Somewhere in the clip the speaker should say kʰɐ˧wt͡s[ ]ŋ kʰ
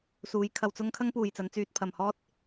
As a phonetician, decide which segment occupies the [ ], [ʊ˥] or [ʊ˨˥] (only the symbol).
ʊ˥